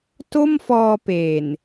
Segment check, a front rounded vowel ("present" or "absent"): absent